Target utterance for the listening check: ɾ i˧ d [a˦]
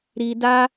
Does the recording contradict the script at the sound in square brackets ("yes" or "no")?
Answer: no